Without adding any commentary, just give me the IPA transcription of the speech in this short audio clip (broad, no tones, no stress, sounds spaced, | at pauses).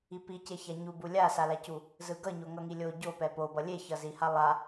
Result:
i p i c e ç a ɲ u b u lʲ a s a l a c u | z ɯ ɡ ʌ ɲ o ŋ ʌ ŋ i lʲ o ɟ o p ɛ p o b ʌ lʲ e ç ʌ z i h a lˠ a